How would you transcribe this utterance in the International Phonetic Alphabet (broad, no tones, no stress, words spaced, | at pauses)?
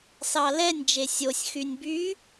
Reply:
sɑlɛnʲ d͡ʒesʲosʲ xynʲby